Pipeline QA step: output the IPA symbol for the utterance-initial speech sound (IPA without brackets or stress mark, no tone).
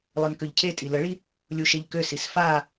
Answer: lˠ